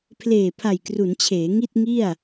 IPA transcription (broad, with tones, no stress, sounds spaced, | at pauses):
pʰ l eː˨˩ pʰ a˨˩ j k r u˩˦ n t͡ɕʰ eː˩˦ ŋ i˥˩ t̚ ŋ i˥˩ a̯